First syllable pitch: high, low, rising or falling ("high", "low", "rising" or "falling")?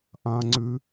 low